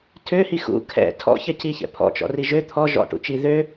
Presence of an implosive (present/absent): absent